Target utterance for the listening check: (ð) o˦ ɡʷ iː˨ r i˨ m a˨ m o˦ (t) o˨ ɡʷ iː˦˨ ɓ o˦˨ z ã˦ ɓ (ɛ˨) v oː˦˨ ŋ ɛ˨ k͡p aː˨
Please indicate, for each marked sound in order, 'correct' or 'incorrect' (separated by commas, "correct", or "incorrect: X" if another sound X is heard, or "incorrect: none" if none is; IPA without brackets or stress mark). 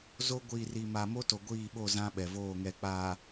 incorrect: z, correct, correct